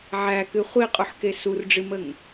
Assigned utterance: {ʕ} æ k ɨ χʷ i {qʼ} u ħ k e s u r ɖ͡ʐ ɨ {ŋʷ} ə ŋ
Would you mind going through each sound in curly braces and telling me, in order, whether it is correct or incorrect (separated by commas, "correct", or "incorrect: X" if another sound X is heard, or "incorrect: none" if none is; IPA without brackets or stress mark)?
correct, correct, incorrect: m